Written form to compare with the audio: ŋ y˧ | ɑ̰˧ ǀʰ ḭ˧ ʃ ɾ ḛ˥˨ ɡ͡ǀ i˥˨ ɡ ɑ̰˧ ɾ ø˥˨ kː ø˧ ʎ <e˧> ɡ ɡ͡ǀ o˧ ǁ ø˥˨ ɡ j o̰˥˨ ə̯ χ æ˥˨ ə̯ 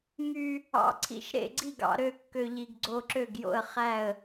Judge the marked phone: incorrect: i˧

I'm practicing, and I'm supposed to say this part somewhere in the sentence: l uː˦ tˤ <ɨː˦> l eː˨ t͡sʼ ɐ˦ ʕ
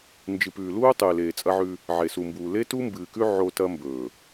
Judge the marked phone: incorrect: ɨː˨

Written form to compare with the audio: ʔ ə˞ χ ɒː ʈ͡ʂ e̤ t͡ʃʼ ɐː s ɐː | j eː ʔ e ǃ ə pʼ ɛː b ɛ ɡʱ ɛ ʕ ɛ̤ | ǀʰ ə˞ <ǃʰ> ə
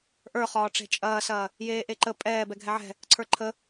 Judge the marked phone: correct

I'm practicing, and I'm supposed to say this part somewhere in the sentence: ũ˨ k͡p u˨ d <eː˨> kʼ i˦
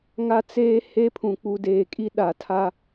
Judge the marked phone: correct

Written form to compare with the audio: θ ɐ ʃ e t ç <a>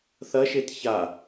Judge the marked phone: correct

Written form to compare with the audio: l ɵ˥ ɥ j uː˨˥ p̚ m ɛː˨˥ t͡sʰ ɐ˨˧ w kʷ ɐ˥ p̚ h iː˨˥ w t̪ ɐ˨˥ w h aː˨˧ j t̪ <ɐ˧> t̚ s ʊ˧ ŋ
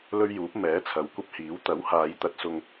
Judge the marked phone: correct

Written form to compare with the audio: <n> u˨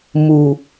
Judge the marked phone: incorrect: m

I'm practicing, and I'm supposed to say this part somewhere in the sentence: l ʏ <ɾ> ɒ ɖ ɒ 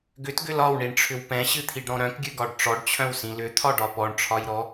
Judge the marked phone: incorrect: t̪ʰ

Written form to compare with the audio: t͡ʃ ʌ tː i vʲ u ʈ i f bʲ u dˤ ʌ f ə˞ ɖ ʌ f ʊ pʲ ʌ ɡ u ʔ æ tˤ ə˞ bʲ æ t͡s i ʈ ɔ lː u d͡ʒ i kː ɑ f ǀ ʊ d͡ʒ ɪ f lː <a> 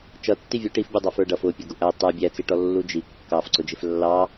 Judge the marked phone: incorrect: ɑ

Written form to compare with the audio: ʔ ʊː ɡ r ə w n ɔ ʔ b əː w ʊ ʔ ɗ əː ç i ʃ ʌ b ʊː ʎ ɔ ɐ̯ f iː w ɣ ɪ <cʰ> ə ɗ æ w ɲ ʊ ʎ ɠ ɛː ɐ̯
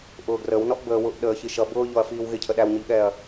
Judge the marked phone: correct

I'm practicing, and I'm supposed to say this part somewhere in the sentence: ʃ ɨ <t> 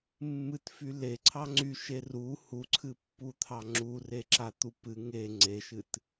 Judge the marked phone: correct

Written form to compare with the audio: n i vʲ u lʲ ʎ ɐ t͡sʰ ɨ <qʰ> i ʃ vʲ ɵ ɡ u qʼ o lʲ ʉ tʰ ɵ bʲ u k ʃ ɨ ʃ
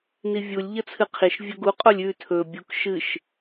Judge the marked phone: correct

